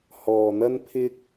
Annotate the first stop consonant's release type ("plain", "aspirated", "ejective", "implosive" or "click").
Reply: aspirated